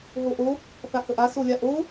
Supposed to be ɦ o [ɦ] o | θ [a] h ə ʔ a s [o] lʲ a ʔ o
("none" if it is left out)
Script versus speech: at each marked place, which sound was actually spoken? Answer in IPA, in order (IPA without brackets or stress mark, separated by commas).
ʔ, a, o